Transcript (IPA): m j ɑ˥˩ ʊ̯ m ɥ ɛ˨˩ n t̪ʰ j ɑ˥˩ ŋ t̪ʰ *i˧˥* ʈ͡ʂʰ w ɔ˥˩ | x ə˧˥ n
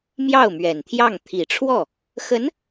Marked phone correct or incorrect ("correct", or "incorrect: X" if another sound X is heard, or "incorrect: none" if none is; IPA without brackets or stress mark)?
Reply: incorrect: i˨˩